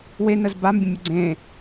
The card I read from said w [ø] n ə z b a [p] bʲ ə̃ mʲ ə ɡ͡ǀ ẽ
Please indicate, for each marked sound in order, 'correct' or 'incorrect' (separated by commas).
incorrect, incorrect